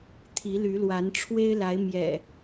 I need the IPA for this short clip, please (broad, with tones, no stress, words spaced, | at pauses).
t̪ʰi˨˦ly˨˦lwa˨˦n ʈ͡ʂʰwe˦ɪ̯la˨˦ɪ̯ mjɛ̰˨˩